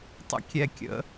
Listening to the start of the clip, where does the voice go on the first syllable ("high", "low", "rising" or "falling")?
high